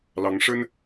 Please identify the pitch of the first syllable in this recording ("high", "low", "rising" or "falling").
rising